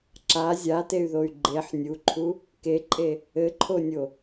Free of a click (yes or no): no